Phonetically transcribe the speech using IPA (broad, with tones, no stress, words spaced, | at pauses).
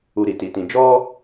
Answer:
u˧ɾi˨ti˨tĩ˧ d͡ʒɔ˦